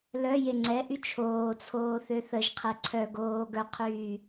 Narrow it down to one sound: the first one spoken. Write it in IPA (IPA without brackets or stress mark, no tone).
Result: l